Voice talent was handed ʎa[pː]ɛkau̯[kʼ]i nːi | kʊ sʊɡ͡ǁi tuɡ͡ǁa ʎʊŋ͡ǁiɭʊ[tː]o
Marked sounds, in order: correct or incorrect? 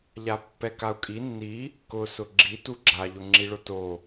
correct, correct, incorrect: t

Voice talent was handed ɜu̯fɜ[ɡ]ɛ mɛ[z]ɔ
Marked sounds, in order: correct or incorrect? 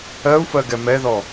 correct, incorrect: ð

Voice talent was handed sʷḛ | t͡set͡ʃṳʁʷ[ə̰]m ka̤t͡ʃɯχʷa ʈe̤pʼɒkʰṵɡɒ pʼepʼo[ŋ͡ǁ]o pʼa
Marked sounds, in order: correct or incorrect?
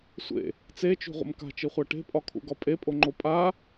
correct, incorrect: ŋ͡ǃ

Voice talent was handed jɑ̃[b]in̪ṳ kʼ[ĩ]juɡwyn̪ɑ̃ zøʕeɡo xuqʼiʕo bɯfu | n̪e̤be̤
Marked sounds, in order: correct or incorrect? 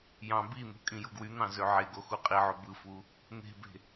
correct, correct

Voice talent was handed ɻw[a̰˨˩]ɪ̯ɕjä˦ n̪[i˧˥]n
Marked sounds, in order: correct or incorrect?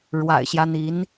correct, correct

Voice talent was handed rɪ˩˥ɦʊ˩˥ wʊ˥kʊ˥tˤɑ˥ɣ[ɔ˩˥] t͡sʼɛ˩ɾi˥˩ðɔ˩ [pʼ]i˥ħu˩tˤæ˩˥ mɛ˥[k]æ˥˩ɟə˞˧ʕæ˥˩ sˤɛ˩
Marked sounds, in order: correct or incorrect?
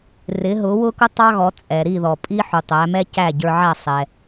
correct, correct, incorrect: c

